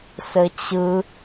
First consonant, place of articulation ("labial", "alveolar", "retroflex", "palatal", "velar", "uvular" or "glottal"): alveolar